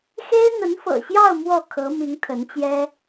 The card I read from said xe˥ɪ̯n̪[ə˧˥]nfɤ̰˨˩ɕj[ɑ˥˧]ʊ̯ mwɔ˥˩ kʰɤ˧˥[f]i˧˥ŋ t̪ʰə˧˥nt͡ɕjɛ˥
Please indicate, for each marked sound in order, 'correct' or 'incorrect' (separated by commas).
correct, correct, incorrect